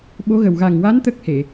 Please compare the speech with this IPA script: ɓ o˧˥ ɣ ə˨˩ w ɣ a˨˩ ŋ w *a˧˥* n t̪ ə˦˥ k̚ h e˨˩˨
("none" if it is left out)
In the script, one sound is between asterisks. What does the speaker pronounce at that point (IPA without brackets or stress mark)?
a˧˥